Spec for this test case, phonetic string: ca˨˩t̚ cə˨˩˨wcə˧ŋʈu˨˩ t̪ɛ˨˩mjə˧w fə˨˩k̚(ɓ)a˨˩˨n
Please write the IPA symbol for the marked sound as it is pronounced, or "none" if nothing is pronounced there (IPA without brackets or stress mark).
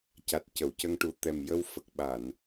ɓ